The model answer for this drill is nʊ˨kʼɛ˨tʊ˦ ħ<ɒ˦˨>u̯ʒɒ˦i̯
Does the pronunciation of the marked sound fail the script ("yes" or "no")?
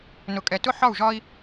no